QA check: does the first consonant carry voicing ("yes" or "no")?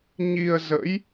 yes